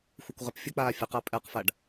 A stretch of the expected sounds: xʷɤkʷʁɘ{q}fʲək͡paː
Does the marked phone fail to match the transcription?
yes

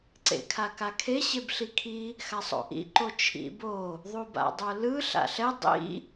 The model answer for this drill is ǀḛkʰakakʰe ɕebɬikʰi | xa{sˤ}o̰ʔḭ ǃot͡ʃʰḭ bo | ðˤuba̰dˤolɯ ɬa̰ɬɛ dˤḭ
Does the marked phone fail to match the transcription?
no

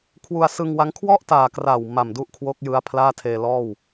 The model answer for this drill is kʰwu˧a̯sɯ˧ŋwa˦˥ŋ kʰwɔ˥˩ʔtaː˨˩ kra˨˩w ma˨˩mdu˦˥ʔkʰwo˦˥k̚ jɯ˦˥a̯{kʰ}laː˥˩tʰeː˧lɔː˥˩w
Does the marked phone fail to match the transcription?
yes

